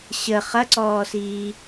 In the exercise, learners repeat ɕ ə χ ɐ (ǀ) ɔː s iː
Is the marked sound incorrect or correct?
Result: correct